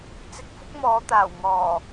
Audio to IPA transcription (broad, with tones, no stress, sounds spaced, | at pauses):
t͡s ɪ˧ k̚ f ʊ˥ k̚ m ɔː˨˧ t̪ aː˨˩ w ŋ ɔː˨˩